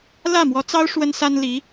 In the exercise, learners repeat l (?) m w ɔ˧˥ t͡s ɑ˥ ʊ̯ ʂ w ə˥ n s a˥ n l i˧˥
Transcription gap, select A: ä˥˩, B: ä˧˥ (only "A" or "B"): A